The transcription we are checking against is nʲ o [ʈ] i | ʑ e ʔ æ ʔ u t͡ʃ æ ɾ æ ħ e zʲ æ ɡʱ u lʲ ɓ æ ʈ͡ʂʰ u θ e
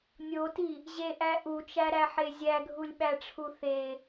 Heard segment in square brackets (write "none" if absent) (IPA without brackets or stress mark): t